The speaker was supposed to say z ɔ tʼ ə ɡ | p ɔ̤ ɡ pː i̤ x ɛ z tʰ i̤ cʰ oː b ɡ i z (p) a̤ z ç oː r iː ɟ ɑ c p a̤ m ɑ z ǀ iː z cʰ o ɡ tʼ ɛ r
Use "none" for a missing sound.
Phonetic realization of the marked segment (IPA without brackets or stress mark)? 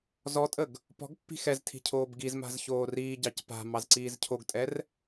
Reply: m